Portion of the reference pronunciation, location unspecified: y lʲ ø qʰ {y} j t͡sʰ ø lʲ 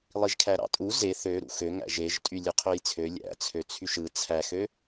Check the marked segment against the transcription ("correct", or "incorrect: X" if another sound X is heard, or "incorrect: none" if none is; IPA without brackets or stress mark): incorrect: ø